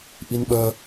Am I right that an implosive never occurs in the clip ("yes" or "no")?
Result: no